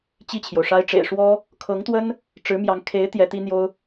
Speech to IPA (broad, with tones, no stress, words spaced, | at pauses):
t͡ɕi˥˩t͡ɕʰjo˩ʊ̯ʂa˥ɪ̯ ʈ͡ʂḛ˨˩ɪ̯ ʂwɔ˥ | kʰɤ˧˥ŋt̪wə˥n | ʈ͡ʂɻ̩˧˥mjɑ˧˥ŋ kʰe˧˥ɪ̯ t̪jɛ˧˥t̪i˥n̪jo˥ʊ̯